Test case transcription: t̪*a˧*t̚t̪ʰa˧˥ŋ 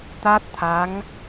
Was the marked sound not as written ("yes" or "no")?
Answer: yes